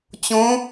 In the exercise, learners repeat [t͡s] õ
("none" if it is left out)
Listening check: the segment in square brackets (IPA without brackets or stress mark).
t͡ɕ